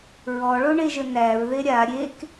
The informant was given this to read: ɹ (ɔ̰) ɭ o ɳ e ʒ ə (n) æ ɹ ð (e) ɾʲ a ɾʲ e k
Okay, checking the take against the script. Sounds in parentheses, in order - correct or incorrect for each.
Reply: incorrect: ɔ, correct, correct

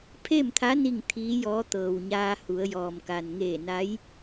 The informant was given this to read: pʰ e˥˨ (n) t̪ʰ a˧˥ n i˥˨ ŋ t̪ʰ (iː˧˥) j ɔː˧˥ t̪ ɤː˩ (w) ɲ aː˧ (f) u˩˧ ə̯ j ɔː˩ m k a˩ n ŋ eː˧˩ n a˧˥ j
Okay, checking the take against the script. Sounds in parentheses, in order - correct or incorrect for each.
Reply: incorrect: m, correct, correct, incorrect: h

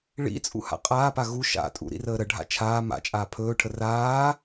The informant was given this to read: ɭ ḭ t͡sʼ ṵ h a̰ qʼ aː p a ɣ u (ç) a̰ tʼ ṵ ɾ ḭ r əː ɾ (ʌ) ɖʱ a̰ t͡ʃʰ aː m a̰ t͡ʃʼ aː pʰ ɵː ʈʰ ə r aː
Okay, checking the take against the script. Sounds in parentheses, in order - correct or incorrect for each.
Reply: incorrect: ʃ, incorrect: ə

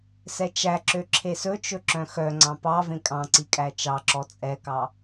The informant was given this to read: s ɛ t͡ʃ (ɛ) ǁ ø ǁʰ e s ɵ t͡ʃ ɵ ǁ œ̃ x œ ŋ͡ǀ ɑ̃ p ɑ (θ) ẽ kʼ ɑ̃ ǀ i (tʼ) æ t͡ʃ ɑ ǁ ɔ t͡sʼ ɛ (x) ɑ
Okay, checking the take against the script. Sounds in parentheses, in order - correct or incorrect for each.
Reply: incorrect: æ, incorrect: v, incorrect: kʼ, incorrect: k

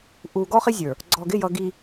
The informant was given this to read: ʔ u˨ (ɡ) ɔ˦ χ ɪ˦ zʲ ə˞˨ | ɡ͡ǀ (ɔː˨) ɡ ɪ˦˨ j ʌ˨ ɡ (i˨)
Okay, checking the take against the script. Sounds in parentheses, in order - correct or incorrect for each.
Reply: correct, incorrect: ɔ˨, correct

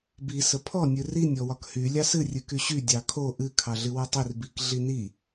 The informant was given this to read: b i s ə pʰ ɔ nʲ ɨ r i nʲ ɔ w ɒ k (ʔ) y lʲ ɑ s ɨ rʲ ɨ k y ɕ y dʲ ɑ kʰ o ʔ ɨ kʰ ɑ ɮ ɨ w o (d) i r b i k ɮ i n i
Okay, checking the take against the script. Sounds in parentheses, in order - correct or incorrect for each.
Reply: incorrect: h, incorrect: tˤ

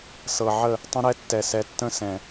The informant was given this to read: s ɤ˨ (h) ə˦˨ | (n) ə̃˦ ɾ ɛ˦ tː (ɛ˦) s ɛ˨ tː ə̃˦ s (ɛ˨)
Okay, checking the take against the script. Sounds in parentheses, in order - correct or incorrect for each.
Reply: incorrect: ʕ, incorrect: tˤ, incorrect: ɛ˨, incorrect: ɛ̃˨

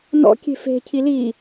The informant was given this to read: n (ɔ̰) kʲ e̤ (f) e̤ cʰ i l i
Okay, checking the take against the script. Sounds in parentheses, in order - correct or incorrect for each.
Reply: correct, correct

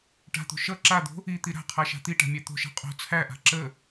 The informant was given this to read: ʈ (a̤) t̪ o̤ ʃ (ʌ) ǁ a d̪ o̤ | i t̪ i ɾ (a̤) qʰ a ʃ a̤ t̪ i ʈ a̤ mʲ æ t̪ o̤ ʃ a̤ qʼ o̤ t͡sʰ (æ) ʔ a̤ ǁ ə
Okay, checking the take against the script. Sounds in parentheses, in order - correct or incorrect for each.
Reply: correct, correct, correct, correct

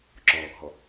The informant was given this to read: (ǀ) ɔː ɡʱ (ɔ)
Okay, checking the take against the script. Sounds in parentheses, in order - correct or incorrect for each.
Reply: incorrect: ǁ, correct

